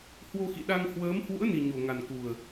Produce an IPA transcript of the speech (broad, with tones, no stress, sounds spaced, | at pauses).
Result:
h w o˧ x ḭ˧˨ ɗ a˧ ŋ h w əː˨˦ m h w ṵ˧˥ ə̯ n i˨˩ ɲ o˨˩ ŋ a˨˩ n k u˨˩ ə̯